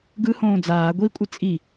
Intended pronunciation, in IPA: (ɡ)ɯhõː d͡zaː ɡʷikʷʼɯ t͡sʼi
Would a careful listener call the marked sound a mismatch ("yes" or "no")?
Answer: no